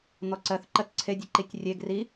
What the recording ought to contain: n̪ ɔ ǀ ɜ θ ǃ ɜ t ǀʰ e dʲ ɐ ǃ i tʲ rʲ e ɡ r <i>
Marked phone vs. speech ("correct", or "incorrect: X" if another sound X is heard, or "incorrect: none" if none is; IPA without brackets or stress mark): correct